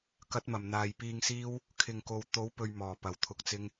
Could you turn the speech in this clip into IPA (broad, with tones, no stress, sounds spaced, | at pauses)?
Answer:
k ɐ˨˥ t̚ m ɐ˨˩ m n̪ aː˨ j p iː˧ ŋ s iː˥ w | kʰ ɪ˨ ŋ k o˨ w t̪ o˨˥ w p ɵ˧ ɥ m ɔː˨˩ p ɐ˨˩ w t̪ʰ ʊ˧ k̚ t͡s ɪ˥ ŋ